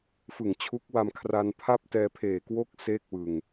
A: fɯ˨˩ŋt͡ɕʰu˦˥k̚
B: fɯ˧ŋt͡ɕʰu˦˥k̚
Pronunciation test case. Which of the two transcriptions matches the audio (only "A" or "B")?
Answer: A